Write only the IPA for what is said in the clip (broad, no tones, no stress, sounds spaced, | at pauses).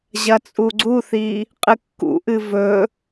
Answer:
ʑ ɐ t͡sʼ u ɡ͡ǀ u θ i | qʼ ɨ kː ṵ ʔ ɨ v ɵ